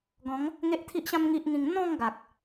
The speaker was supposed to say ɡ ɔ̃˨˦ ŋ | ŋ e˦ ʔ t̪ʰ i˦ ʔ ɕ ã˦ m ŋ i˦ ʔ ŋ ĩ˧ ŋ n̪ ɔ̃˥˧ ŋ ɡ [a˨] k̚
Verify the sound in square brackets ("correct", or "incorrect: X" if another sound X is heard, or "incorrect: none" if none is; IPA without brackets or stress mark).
correct